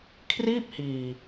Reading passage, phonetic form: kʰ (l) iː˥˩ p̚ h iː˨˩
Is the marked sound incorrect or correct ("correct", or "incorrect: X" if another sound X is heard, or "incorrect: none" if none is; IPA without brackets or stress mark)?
incorrect: r